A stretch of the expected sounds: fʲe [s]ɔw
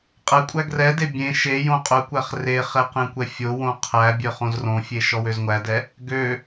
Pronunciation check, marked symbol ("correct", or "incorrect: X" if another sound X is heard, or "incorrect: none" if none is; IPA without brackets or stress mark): incorrect: ʃ